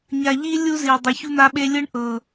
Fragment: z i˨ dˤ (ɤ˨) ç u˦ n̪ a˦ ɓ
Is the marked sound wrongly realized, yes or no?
yes